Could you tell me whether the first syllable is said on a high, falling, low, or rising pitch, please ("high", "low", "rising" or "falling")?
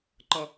high